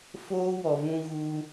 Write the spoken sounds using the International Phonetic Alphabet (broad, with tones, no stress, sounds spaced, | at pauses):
f oː˦ w ɔ˨ v ũ˧ ɣ u˧